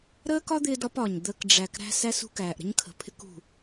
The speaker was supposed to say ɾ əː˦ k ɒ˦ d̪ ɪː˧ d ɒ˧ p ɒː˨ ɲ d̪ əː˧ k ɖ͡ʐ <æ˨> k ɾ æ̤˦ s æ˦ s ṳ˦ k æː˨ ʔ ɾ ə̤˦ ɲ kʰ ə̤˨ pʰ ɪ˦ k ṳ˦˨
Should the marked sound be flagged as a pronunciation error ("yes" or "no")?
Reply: no